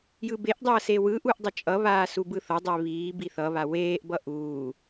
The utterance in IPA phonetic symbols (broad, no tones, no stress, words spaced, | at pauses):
jɯbeʔdˤʌː sewɯʔuʔ dˤʌt͡ʃʼʌβaː subɯθʌdˤe βiː biθʌβa weːʔbʌ ʔuː